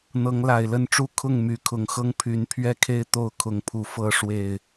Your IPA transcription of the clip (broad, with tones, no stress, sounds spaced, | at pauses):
n̪ ɤ˨˦ ŋ l a˨˩ ɪ̯ l ə˥˨ n ʈ͡ʂ u˥˨ kʰ ʊ˥˨ ŋ m y˨˦ kʰ ʊ˨˩ ŋ x ɤ˦ ŋ pʰ y˨˦ n pʰ ɥ ɛ˥˨ kʰ e˥˨ ɪ̯ t̪ o˥˨ ʊ̯ kʰ ʊ˨˦ ŋ pʰ u˨˩ f ɤ˥˨ ʂ w e˨˩ ɪ̯